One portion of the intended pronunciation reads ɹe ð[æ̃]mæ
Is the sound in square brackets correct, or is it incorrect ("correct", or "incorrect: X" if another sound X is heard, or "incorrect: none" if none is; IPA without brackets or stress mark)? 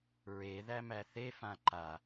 incorrect: æ